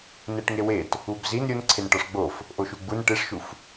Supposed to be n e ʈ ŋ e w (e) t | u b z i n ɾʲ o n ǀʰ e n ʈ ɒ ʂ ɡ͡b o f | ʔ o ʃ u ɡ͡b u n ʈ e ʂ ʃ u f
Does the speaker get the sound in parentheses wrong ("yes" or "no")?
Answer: no